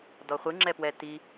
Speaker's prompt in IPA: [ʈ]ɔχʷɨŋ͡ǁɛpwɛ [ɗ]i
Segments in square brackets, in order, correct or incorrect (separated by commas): incorrect, incorrect